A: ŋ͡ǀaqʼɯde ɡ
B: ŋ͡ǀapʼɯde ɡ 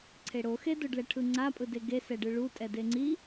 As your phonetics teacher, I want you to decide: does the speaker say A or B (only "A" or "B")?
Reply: B